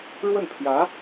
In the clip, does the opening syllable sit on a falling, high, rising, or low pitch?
falling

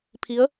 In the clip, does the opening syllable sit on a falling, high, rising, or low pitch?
rising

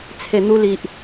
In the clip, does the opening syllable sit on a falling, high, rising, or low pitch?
low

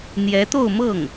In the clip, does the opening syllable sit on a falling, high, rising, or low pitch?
rising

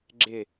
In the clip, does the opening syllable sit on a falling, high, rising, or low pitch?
low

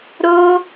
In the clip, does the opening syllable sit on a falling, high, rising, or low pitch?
high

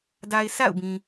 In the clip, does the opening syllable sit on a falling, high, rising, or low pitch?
low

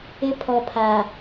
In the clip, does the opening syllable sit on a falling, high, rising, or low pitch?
high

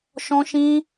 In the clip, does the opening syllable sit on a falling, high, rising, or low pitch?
high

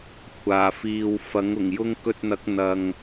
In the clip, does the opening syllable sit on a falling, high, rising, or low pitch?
low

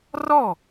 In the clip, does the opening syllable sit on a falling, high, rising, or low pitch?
falling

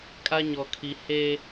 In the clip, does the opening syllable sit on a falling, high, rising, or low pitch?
high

